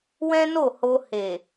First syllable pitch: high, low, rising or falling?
high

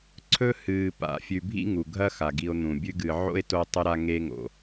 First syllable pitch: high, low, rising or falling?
high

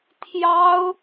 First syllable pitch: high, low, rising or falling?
high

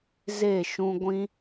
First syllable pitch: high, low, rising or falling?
falling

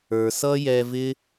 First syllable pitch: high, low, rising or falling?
low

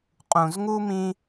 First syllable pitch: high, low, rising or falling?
low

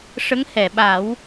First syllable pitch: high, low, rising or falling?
rising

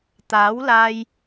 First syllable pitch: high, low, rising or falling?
rising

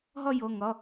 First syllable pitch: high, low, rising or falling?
falling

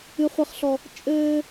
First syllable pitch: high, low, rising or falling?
high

